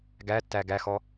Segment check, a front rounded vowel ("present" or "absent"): absent